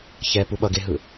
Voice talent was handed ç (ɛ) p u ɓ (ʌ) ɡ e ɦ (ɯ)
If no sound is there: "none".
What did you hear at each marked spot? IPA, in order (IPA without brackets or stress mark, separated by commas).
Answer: ɛ, ʌ, ɯ